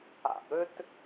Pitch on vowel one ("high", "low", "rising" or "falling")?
low